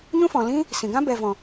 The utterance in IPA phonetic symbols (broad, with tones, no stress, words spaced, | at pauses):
ɲũ˦fɔ̃˨ lĩ˦ | sĩ˨ɡã˦ bɛ˨vɔ̃˨